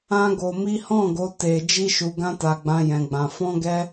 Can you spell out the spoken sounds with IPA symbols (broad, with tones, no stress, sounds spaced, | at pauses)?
ã˦ ɡ o˧ m i˦ h ɔ̃˦˨ ɡ o˨˦ t e˧ d͡ʒ i˦ ʃ u˧ ɡ ã˦ t a˧ ɡ͡b ã˦ j ɛ̃˧ ɡ͡b ã˧ f ɔ̃˦ ɡ ɛ˦